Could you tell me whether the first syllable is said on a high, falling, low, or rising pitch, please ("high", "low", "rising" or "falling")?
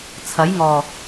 rising